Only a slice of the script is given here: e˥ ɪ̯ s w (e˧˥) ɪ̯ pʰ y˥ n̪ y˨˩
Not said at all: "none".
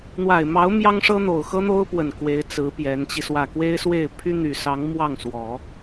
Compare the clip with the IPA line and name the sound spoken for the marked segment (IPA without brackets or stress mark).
e˥˩